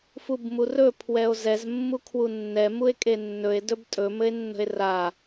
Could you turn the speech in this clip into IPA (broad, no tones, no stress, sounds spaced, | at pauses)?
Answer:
f u b m u r ɵ pʰ w ɛ o̯ z ɛ z mː u kʰ w u nː ɛ m u e̯ kʼ e nː ɵ e̯ d ɵ b tʼ ɵ m ɘ e̯ nː ə̤ e̯ r a